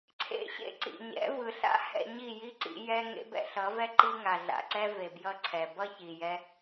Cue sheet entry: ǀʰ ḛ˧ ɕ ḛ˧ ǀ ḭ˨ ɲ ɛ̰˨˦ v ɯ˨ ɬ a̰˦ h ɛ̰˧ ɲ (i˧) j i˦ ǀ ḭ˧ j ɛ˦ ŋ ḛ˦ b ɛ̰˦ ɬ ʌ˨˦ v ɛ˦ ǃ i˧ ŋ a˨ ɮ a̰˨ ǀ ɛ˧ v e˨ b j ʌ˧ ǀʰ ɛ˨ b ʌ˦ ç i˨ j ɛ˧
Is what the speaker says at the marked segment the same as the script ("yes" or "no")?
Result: no